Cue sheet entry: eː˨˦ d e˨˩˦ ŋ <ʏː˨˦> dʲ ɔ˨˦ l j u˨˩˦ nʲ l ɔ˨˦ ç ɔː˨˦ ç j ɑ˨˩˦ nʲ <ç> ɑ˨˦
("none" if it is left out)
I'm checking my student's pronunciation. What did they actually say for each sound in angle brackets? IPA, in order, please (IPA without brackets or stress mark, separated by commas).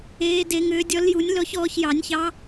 ʏː˨˦, ç